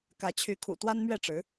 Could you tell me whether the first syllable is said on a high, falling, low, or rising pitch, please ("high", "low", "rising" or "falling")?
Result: rising